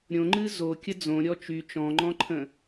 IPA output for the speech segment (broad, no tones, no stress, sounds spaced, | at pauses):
ɾʲ õ ŋ͡ǃ ɨ z o kʲ ə d͡z õ ɾʲ ɔ t͡ʃ y t͡ʃ ɔ̃ ŋ͡ǃ ɔ̃ ǃʰ ə̃